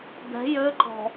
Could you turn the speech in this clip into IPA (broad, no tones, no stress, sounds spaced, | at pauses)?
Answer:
d̪ ɛ̤ j ø ǃ ɔ̤